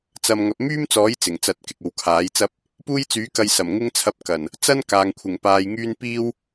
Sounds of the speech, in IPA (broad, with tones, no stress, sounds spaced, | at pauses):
t͡s ɐ˧ m ŋ ɐ˨ p̚ m yː˥ m t͡s ɔː˨˥ j t͡s ɪ˨˩ ŋ t͡s ɐ˧ t̚ k ɪ˨ k̚ o˨ w kʰ aː˨˥ j t͡s ɐ˥ p̚ | p uː˥ j t͡s yː˨˥ k ɐ˧ j s ɐ˨˩ m ŋ ɪ˥ ŋ t͡sʰ ɐ˧ p̚ k ɐ˨˩ n | t͡s ɐ˥ n k aː˨ ŋ kʷʰ ɪ˨˩ ŋ p aː˧ j ŋ yː˥ n p iː˥ w